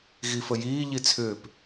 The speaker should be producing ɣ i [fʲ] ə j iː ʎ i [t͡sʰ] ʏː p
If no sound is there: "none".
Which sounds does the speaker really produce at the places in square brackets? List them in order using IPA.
f, t͡sʰ

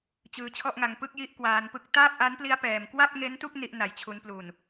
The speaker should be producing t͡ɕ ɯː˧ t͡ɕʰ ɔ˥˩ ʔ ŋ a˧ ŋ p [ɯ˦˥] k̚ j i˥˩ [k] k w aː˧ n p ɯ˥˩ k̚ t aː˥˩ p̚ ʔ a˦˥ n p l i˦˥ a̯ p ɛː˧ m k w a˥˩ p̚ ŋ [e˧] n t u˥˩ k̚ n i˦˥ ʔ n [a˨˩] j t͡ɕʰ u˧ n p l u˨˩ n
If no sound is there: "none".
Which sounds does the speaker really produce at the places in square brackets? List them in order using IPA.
ɯ˥˩, ʔ, e˦˥, a˨˩

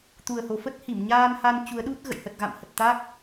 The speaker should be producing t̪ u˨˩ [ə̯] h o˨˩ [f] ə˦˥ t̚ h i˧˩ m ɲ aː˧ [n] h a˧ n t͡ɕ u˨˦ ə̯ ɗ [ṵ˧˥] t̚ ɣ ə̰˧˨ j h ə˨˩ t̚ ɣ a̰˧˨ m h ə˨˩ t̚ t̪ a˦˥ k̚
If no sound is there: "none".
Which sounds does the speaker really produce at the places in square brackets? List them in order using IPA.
ə̯, f, n, u˦˥

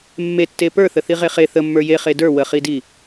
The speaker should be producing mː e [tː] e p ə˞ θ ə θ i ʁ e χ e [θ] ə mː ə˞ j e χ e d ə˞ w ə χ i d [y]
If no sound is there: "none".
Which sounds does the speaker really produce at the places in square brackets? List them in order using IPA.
tː, θ, i

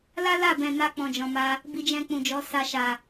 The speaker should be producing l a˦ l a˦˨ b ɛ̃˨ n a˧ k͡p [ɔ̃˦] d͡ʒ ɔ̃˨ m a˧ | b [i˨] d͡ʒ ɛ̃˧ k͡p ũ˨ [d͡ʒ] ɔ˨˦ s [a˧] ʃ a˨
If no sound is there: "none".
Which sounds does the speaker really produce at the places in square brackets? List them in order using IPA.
ɔ̃˨, i˧, d͡ʒ, a˧

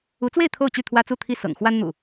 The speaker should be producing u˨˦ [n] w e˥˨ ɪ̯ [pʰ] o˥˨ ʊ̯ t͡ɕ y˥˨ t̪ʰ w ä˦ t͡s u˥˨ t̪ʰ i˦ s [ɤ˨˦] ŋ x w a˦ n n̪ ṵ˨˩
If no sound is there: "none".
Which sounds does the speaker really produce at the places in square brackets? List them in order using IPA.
t͡s, t̪ʰ, ɤ̰˨˩

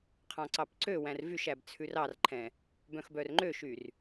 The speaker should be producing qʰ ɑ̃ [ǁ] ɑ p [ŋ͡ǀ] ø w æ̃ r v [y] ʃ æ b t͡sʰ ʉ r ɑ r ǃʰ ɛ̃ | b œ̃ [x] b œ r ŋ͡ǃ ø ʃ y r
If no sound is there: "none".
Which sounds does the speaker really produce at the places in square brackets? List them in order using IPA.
ǀ, ǀ, y, x

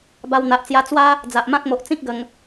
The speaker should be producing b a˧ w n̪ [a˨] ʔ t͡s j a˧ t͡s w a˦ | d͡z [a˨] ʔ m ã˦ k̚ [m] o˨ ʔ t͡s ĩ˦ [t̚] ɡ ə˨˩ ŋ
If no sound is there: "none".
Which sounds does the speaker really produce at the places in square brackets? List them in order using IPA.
a˨, a˨, m, k̚

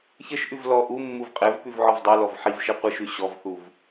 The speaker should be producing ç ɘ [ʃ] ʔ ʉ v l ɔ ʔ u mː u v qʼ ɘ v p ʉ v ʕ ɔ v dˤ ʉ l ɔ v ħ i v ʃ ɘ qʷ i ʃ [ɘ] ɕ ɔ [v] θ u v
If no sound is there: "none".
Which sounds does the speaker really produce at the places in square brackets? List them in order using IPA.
ʃ, ʉ, v

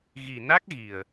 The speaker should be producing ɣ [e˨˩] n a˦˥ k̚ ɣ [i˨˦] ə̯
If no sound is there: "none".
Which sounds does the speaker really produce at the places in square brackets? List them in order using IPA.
i˨˩, i˨˩

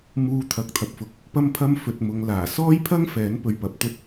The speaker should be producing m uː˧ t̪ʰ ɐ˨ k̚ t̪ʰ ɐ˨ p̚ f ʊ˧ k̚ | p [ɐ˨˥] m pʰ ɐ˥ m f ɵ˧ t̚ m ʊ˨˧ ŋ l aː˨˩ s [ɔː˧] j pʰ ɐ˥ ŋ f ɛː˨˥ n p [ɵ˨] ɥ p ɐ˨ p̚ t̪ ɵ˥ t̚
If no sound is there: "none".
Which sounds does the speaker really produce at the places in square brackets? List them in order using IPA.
ɐ˥, ɔː˥, ɵ˧

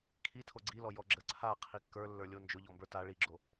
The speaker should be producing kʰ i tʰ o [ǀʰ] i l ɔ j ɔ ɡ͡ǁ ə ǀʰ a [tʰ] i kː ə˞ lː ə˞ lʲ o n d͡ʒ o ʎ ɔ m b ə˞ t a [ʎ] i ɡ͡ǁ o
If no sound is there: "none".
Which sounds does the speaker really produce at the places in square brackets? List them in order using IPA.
ɡ͡ǀ, qʰ, ɭ

